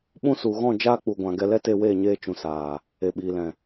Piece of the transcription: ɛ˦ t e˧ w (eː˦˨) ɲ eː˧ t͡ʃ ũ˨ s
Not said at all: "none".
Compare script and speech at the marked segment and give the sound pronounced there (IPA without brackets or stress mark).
eː˦˨